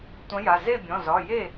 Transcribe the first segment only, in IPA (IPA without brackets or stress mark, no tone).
tʷ